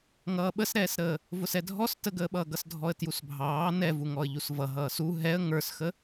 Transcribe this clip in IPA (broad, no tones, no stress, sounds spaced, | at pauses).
ŋ ʌː ɓ ə s ɾ ɛː s ɾ əː | v ʊ s ɛ dʱ ɔ s t ə ɡ əː ɓ ʌː ɡ ʌ s dʱ ɔ ə̯ t j u s bʱ ɑː n ɛ v u ŋ ɔ ə̯ ʎ u s v ʌ ɦ ʌː s u ɦ ɛ ə̯ ŋ ə˞ s x ə